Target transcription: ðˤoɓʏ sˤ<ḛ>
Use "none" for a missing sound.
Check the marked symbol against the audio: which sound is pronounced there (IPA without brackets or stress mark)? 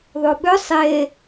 e